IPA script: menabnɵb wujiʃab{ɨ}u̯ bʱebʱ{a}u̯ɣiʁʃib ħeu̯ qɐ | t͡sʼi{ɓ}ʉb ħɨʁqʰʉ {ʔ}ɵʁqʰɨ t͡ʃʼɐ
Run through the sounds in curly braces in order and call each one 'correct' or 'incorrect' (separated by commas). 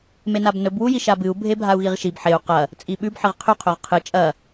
correct, correct, correct, incorrect